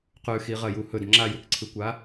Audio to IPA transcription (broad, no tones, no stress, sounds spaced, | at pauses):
q ʉ x i ʁ ɐ j u h ɵ d ŋ͡ǁ a j ʉ k ǀʰ ɨ kʷ a